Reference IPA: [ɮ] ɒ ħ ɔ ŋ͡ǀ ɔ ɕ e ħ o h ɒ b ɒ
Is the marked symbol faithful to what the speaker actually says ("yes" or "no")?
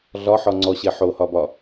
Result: yes